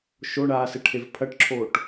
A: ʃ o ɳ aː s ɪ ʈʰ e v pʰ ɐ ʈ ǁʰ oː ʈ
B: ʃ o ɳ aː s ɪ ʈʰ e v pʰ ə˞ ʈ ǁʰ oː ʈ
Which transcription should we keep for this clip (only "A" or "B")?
A